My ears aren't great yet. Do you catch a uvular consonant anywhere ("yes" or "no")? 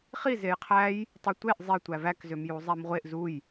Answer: yes